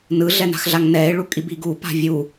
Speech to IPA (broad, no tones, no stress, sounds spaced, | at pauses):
n ɯ ɮ ɛ n a̤ x ɮ a ŋ n ɛ e̯ ɭ u kʼ i b i ɡ u p a̤ vʲ u